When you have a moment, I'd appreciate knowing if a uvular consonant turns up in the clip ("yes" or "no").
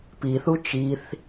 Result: no